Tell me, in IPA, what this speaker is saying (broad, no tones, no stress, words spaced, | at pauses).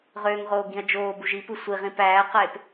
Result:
ʁøːŋʁoː ɡĩɐ̯d͡ʒoːbuʒ ipɯ sʷiʁĩp æːqep